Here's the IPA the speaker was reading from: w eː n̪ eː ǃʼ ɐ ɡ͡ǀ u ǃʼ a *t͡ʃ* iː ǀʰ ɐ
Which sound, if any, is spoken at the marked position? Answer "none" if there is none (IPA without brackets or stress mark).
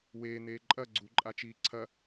t͡ʃ